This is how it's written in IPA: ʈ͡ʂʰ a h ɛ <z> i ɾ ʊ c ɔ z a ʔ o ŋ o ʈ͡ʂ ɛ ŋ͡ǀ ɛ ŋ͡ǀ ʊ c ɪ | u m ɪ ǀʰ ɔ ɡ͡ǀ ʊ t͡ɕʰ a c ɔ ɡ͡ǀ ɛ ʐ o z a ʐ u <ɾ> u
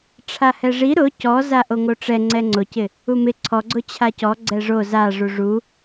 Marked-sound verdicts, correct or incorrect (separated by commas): incorrect, incorrect